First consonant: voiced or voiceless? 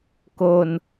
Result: voiceless